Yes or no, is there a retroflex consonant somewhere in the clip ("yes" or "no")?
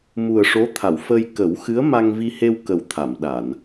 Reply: yes